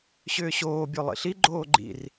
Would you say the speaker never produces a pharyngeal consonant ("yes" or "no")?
yes